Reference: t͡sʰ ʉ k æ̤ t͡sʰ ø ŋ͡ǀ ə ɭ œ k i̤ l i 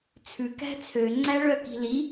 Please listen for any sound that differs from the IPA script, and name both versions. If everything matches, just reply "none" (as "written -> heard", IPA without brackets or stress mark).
ə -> æ